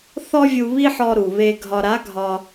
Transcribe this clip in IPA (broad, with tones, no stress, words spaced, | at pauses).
θɔ˥vʲu˧βi˥ħɔ˧ ɾu˩βe˧ ɡʱɒ˧ɾa˧˥ɡʱɒ˧